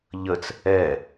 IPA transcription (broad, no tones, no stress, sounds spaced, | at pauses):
ʎ ə t͡s | ɛ